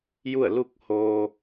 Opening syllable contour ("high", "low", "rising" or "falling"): falling